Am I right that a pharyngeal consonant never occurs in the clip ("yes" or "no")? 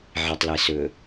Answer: no